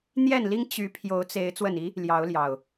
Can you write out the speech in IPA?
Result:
n̪ j ɛ˥˨ n l i˦ ŋ t͡ɕ y˨˦ pʰ j o˨˦ ʊ̯ t͡s e˨˦ ɪ̯ t͡s w ə˨˩ n i˨˦ | l j ɑ˨˦ ʊ̯ l j ɑ˨˩ ʊ̯

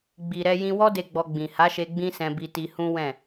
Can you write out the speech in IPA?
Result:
ɡ͡b i˨ ɾ ɛ˧ j ĩ˧ w ɔ˦ d e˦˨ ɡ͡b ɔ˧ ɡ͡b ĩ˨ h a˨˦ ʃ e˧ ɡ͡b ĩ˦ s ɛ̃˧ b i˧ t i˧ h ũ˦ w ɛ̃˦˨

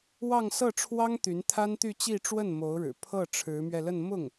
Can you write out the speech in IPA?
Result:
w ɑ˥˧ ŋ s ɤ˥˩ ʈ͡ʂʰ w ɑ˥ ŋ t̪ y˧˥ n t̪ʰ a˥ n t̪ y˥˧ t͡ɕ i˥˧ ʈ͡ʂ w ə˥˩ n m o˧˥ ʊ̯ ɻ ɻ̩˨˩ pʰ ɤ˥˩ ʈ͡ʂʰ ɻ̩˧˥ m ɥ ɛ˧ l ə˥˧ n m ʊ˥˩ ŋ

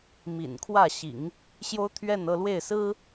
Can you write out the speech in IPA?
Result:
m ḭ˨˩ n kʰ w ä˥˩ ɕ ḭ˨˩˦ ŋ | ɕ j o˥ ʊ̯ t̪ʰ ɥ ɛ˥˧ n ɤ˥˧ l w e˥˩ ɪ̯ s ɹ̩˥

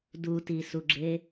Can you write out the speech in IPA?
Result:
d u t i s u ɡ͡ǁ e

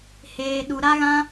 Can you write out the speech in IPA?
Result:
h eː˧ ɗ u˧ ɾ a˦ ɣ ã˦

